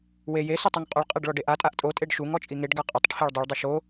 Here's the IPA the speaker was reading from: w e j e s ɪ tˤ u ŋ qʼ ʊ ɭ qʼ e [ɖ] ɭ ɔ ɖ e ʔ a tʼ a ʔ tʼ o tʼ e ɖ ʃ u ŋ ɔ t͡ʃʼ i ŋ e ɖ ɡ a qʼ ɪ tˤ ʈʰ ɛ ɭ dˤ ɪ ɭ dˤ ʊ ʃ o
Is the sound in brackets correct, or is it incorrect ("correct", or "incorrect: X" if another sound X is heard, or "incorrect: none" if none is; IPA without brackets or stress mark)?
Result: correct